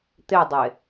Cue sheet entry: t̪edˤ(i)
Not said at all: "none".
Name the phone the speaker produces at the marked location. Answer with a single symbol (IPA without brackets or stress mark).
e